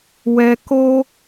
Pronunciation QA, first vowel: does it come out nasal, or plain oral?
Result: oral